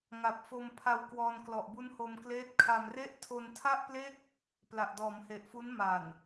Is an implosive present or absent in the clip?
absent